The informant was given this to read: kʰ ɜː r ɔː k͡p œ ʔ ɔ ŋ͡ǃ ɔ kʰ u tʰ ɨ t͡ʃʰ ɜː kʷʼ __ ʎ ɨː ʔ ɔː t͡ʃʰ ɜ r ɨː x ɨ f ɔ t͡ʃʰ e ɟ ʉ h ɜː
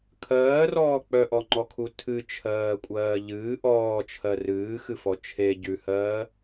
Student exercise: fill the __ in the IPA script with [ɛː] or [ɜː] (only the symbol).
ɜː